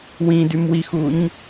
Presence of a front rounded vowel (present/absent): present